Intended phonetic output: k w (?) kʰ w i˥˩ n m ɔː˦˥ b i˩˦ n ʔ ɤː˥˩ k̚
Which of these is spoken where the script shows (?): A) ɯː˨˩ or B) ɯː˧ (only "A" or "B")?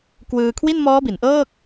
B